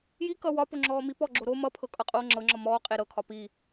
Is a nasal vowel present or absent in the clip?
absent